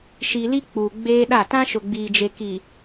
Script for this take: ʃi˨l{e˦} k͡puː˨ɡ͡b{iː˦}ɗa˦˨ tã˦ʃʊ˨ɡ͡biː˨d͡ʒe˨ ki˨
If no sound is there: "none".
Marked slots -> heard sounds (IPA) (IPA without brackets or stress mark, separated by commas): i˦, eː˦